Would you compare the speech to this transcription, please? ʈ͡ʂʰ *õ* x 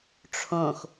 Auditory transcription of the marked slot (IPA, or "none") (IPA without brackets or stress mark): õ